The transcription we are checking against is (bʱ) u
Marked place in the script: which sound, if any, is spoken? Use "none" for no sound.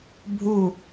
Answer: bʱ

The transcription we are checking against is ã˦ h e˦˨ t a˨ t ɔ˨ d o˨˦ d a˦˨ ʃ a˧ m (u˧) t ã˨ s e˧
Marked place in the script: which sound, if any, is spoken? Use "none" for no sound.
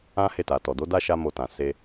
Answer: o˧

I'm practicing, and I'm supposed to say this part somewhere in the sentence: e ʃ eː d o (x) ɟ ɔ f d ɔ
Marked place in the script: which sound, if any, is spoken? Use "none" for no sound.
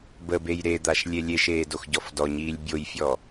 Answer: x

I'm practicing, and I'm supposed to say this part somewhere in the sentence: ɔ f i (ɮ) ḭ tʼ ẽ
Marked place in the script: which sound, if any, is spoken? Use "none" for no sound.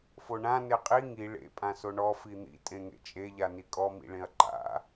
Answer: n̪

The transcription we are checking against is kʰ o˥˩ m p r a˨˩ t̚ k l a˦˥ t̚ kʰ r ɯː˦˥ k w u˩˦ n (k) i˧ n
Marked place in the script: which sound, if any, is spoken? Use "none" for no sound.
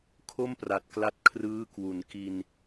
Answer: k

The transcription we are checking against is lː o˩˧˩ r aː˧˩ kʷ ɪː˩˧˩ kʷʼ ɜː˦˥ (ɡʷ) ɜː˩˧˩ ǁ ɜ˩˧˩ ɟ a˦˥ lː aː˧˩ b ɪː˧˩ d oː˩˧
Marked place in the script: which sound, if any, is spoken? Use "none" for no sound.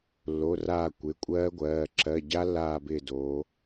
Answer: ɡʷ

